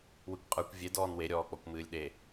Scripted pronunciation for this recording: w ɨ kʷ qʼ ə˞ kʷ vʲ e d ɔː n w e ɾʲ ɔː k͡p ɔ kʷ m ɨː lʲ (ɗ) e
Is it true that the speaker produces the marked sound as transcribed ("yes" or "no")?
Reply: yes